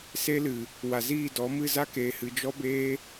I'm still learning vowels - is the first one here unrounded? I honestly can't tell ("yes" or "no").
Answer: yes